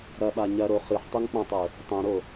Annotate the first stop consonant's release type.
implosive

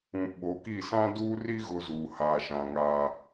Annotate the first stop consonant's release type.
implosive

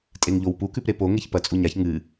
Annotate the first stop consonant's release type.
ejective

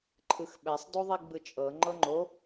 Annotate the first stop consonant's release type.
click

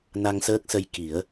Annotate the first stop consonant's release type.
plain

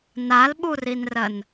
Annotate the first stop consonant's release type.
implosive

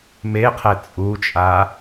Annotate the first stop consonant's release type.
aspirated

